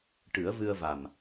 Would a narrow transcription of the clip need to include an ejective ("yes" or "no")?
no